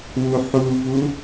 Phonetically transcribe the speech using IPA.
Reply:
wuħuvu

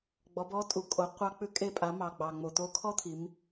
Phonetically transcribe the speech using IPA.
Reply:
ɡ͡bɔ˩˧bɔ˧˥tʼu˩ kʼo˩˧qʷɑ˧k͡pʉ˧˥ kʼe˧pʼa˩˧ mɑ˩ɡ͡bɑ˩ ŋ͡mo˩t̪o˧kʰɔ˥t̪ʰi˩˧m

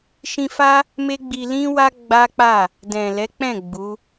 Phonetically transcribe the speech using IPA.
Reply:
ʃĩ˧fa˦ | me˦ɡ͡bi˧ lĩ˦wa˦ ɡ͡ba˦k͡pa˦˨ | dɛ̃˨lɛ˨˦k͡pɛ̃˦˨ ɡ͡bu˨˦

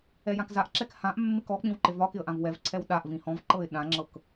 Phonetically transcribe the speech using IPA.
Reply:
ɛjãkzaʔǁɛk hãʔmːɪk ɔk͡pĩw ǃɪvɒkɪə̯ ʔãvwɛvǀʰɛw ɗaʔvĩ hɔ̃vǃɤɪ̯ ɗãŋ͡ǁɤk

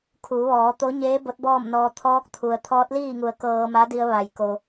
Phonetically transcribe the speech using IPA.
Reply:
kʰuː˩˧ʋɔː˩˧t̪o˧˥ ɲeː˧˥ bo˧˥t̚bɔː˥˨mnɔː˧ t̪ʰɔː˧˥k̚t̪ʰu˩ə̯ t̪ʰɔː˧˥t̚liː˥˨ŋu˩˧ə̯ kɤː˧ma˧˥di˧ə̯ ʋa˩j ko˩

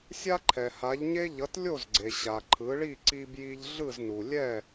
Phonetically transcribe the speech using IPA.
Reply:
sʲa˥ǃʰɛ˩ha˩˥ʎɲe˥ ʎʌ˩˥tlʲo˥˩zɡ͡ǀe˩ ɕa˩ ǃʰɯ˩˥ɭi˥˩ ǀi˧bji˧ʎ ɮɯ˥˩znu˩lʲɛ˥˩

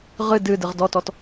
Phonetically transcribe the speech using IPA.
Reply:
ʁɨ dɨdɨʁ dɔtɔt

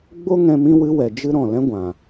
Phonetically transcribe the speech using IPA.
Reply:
ɡ͡bo˦ŋɛ̃˧ mĩ˦wɨ˦wɛ˨d͡ʒɨ˦ ɾɔ̃˨lɛ̃˦ɡʷã˨

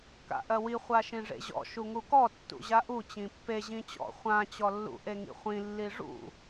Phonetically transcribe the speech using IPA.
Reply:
ka̰ʔɜwi χʷaʃĩʐḛʑɔ̰ ʃuŋukɔ tːṵʑaʔu t͡ɕĩpːe ʑĩt͡ɕɔ̰ χʷã t͡ɕɔlːṵ ʔeŋḭχʷĩ lːiʐṵ

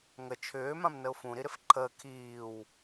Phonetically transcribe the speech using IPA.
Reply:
ŋə t͡ʃʰʏː mãmnəʊ̯fũ ɾiɾɪfǃʰəː kʰiːw

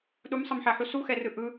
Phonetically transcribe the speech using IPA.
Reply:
ɗumsˤʌmħaħu suxɛrɯ ʔɯ

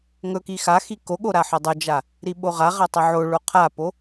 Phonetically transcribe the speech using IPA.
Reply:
ŋɵki xaxi koɠo ɾaħɵdˤɵd͡ʒa | ɾiɓoʁaʁa tˤɵʕoɭo qʰapo

